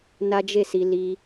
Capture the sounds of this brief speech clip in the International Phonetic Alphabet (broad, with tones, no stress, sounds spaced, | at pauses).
n a˦ d͡ʒ e˦˨ s i˧ l i˧